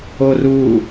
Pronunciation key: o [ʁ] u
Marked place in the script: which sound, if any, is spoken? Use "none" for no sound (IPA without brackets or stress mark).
r